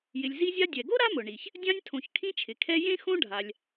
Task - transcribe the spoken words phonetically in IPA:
j ɪ˨ lʲ z i˦ zʲ a˦ dʲ ɛ˩ ɡ o˥ ɾ a˥ m ʊ˩ ɳ i˩ ç | dʲ ã˦ nʲ tʰ õ˨ ç kʰ ĩ˦ t͡ʃʰ ɪ˩ kʰ ɛ˦ j ẽ˥ x õ˥ ɖʱ a˨ lʲ

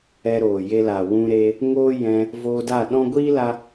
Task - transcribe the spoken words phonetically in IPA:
ɛ˧ ɾ oː˨ j e˧ l a˨ w ũ˧ ɾ e˧ | ŋ oː˦ j ɛ̃˧ | v oː˧ d a˦˨ ɗ ɔ̃˦ ɡʷ iː˦ l a˧

